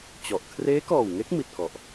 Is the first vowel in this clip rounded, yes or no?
yes